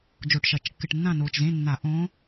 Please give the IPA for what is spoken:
d͡ʒ o˧˩˧ ʈ ʃ ɐ˨˩ t͡ʃ kː ɨ˨˩ ʈ nː ã˥˨ n oː˨˩ t͡ʃ z ẽ˧˥˧ nː a˧˩˧ ʔ õː˧˥

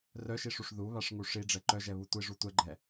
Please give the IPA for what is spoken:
r œ ʃ i ʂ u ʂ ð u β a ʂ ŋ u ʂ i ɖ͡ʐ ɛ ǃ œ ʒ ɛ β u tʷ i ʐ u tʷ ɛ ɡ͡ǃ ɛ

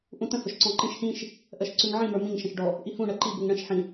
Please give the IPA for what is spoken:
ʔ ũ t ə̃ h ʊ ʃ ǀ ɔ̃ ǃ ĩ ʃ h ĩ ʃ | ʔ ɜ ʃ ǀ ʉ ŋ ʕ ĩ m ə˞ m ĩ ŋ ʃ ə̃ ʃ ɖ ɔ | ʔ i h ũ ɳ ɜ ǃ i b u ŋ ɳ ə̃ ʃ ħ ĩ

